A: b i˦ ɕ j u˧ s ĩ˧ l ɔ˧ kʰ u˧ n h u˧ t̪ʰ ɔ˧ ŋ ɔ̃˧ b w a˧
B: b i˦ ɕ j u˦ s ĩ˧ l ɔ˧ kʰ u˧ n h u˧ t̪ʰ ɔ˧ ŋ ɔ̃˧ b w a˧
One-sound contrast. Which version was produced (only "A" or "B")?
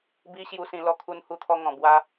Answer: A